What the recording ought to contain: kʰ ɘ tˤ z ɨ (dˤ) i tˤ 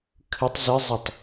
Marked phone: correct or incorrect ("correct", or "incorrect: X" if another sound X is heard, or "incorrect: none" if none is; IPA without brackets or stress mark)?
incorrect: zˤ